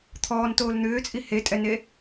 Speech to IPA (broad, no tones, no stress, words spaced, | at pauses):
t̪ʰɔːntoːl n̪ʏːt͡sʼi hetʼɛne